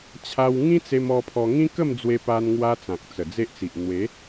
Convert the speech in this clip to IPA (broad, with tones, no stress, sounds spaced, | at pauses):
t͡ɕʰ a˧ w ŋ ĩ˦ t͡s e˧ m ɔ˧ pʰ ɔ˧ ŋ ĩ˦ k ə˥˧ m d͡z w e˧ p a˧ n ŋ w a˧ t͡s ã˨ k̚ t͡s ə˨˩ d͡z e˦ ʔ t͡s i˨ ʔ n̪ w e˨˦